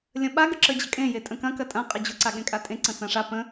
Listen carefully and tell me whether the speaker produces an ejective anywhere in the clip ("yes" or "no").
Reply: yes